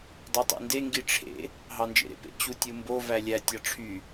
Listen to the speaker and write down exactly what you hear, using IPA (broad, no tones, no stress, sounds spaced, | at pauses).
dˤ ø tˤ ṵ n d e ŋ ɡ i ʈ͡ʂʰ ḛ | ɦ ɑ n d͡ʒ ḛ ɾ ḛ p ḛ t͡ɕ u tʲ ɯ m b o v æ lʲ æ tʲ ɑ ʈ͡ʂʰ y